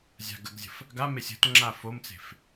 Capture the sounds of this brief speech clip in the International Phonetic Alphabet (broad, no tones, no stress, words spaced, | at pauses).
zʲa̤ɡəɡzʲə̤f | ɡamesʲ ə̤tŋ͡ǁa fomt͡se̤f